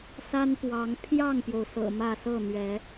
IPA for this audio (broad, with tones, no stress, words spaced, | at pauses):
sa˦npwɑ˨˦ŋ pʰjɑ˥˨ŋpjo˩ʊ̯ sɤ̰˨˩ mä˥˨ sɤ˥˨n̪ɥɛ˨˦